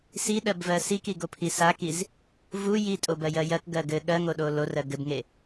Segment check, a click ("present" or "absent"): absent